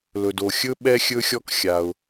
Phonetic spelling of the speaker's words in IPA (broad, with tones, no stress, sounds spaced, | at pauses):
l ɵ˩ d o˩ xʲ ɵ˥ ɓ ɛ˥ xʲ ɵ˥ xʲ ɔ˥ k xʲ a˩ ʊ̯